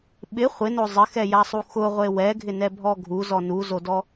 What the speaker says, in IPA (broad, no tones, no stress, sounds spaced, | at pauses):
ɓ ɪ χʷ ɪ n o zˤ ɪ x ɛ j a sˤ u x ʊ ʁʷ e w ɛ ɡʱ ɪ n ɛ bʱ ɔ ɡʱ u z ɔ n u z o d ɔ